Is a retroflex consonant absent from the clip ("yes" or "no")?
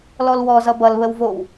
yes